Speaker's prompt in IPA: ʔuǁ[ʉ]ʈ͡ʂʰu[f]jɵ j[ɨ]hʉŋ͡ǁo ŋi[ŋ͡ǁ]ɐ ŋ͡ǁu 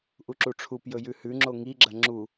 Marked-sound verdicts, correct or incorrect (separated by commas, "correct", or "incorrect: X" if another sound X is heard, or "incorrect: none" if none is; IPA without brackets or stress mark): incorrect: u, incorrect: p, incorrect: ʉ, incorrect: ɡ͡ǁ